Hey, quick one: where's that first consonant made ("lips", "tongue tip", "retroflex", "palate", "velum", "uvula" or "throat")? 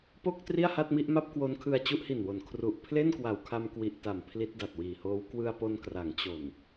lips